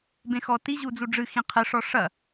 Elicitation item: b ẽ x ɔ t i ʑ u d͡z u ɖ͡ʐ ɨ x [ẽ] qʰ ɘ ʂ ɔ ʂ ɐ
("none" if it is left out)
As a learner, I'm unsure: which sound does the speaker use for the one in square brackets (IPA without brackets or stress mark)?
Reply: ĩ